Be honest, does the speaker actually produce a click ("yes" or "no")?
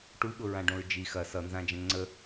yes